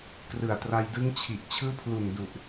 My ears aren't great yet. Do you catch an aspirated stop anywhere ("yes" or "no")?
yes